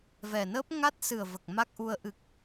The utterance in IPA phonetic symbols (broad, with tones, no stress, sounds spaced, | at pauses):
v ɛ˨˩ n əː˦˥ p̚ ŋ a˦˥ t̚ s ɨ˨˩ ə̯ v ə˨˩ k̚ m a˦˥ k̚ ʔ u˧ ə̯ ʔ ɨ˨˩ k̚